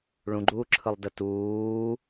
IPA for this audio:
ɭ ũ ɡ͡ǃ uː ǁʰ ɯ lˠ d ə t uː

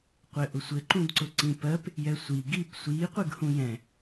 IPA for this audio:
qʷ ɘ ʔ ʊ sʷ ɘ ǃ ũ d ǀ ʊ ǀ ĩ p ɜ p | j ɛ sʷ i ɡ i p sʷ i qʷ ɨ ɡ h ũ j ɛ̃

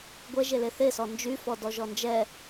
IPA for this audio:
ɡʷ ɛ ʒ e l e θ e s ɔ n d͡ʒ y f ɔ d ɔ ʒ ɔ n d͡ʒ ɛ

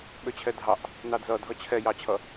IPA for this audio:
ɓ ø t͡ɕʰ ɛ dʱ ɑ ʔ | n ɑ d z ʌ dʱ ʌ t͡ɕʰ ɛ j ɑ t͡ɕʰ ʌ

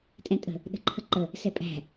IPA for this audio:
tʼ ɛ̃ tʼ ə̤ | ɗ ə̤ ǃʰ ə ǃ ə | s ɛ pʼ æ̤

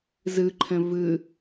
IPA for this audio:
z ɯ ǃʰ ə̃ v ɯ

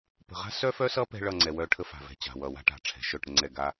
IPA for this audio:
p ə̤˨ ʁ a̤˦ s œ˦ f œ˦ s ʌ˦ p ɛ̤˦ ɭ ʌ˦˨ ŋ͡ǀ ɛ˨ w œ˦˨ ʈʰ ə˦ f a̤˨ v ɛ̤˨ t͡ɕ a̤˨ w ʌ˨ w a̤˦ ʈ a̤˨ ʈ͡ʂʰ ɛ̤˨ ʃ œ˦˨ ʈ ɾ ə˦ ŋ͡ǀ ɛ˦˨ ɡ a˦

